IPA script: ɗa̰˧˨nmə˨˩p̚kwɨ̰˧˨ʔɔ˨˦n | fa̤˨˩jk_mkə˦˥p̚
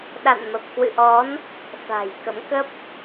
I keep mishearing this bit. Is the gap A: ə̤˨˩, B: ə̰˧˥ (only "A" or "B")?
B